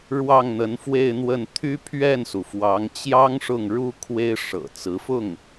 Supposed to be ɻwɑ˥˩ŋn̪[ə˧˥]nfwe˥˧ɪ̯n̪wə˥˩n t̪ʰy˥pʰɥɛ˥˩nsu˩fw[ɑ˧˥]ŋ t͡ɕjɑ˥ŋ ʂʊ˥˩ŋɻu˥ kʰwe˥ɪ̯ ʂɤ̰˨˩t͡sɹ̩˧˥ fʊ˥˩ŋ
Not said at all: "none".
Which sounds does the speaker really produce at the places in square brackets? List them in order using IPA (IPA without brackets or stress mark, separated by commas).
ə˧˥, ɑ˧˥